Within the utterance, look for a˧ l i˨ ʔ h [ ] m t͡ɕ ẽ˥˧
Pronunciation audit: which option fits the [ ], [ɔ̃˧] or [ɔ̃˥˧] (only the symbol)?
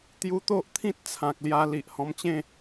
ɔ̃˧